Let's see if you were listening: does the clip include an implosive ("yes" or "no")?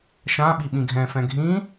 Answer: yes